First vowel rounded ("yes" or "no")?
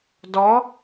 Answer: yes